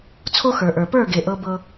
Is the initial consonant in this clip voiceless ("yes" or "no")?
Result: yes